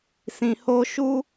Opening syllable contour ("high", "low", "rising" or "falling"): low